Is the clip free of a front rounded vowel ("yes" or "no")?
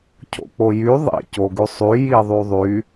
no